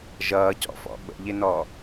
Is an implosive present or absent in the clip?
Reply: present